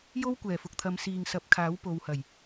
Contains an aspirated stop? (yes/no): yes